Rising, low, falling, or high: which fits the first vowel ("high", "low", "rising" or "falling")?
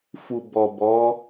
low